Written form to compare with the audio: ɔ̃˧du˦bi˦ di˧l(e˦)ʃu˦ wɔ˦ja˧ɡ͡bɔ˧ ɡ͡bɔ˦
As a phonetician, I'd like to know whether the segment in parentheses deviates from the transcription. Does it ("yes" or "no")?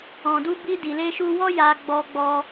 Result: no